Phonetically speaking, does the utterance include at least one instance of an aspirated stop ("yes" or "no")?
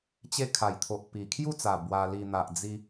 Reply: yes